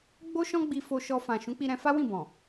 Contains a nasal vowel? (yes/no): yes